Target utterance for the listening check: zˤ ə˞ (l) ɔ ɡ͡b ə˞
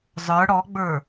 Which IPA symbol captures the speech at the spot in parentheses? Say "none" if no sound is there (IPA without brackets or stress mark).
ɽ